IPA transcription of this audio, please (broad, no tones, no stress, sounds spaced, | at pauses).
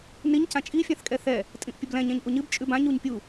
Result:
n i ɲ c ã t͡ʃʼ i fʲ ã θ kʼ ɛ θ ɛ | tʼ ĩ ʔ pʲ ə b l ɛ̃ ɲ ɛ̃ ɲ ʔ u ɲ ɨ b t͡ʃʼ ʉ b ã ɲ u ɲ pʲ u